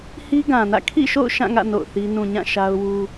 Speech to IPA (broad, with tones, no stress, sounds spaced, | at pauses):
h i˦ ɡ ã˨ n ä̰˦˨ kʰ ḭ˦˨ ʃ o̰˦˨ ʊ̯ ʃ ã˦˨ ŋ ä̰˦˨ n o̰˦˨ ʊ̯ θ i˦ n ũ˨ ɲ ã˦˨ ʃ a˦ ʊ̯ w u˦